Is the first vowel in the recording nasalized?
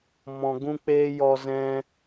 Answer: yes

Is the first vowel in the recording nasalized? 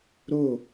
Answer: no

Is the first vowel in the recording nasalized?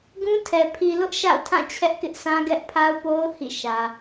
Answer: yes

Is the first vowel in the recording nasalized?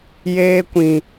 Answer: no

